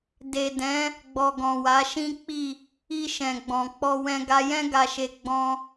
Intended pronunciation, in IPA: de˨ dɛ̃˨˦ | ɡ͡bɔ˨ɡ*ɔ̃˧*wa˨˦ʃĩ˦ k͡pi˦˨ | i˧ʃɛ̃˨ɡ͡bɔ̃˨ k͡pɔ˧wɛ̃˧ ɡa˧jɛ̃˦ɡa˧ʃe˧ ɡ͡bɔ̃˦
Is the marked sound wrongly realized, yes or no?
yes